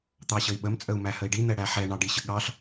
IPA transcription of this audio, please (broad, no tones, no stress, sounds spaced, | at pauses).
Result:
t̪ ɑ ɕ ə i̯ ɓ ə m t͡sʼ ə u̯ m æ h ə i̯ ɖ i n̪ ɛ ɽ æ ħ ɛ ɳ ɑ ɖ i ɕ ə ɠ ɑ ɬ